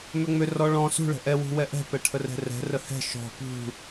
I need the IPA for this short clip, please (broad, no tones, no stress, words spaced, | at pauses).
mʏŋ͡mʏrɔ ɭɔ̃ sṳɭə̤ ʔɛwṳ wɛʔɛ̤pɛ ʈʰərɛ̤rɛ̤rə hɛ̤ ʃɔ̤ pṳ